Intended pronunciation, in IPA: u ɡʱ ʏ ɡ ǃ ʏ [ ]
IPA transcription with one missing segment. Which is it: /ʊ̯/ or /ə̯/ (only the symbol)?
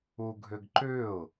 ʊ̯